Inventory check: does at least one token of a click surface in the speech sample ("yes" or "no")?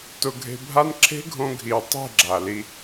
yes